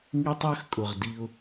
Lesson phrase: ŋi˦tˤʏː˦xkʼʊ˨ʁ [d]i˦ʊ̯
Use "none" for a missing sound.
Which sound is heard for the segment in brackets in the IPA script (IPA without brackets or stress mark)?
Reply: d